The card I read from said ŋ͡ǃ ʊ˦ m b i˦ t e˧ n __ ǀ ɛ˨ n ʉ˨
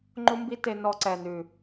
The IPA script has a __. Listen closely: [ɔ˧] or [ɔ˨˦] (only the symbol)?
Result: ɔ˧